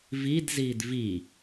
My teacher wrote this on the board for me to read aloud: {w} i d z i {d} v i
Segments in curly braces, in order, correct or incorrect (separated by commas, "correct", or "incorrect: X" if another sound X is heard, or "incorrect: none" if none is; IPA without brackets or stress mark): incorrect: v, correct